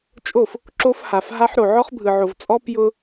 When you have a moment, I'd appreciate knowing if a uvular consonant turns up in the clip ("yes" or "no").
yes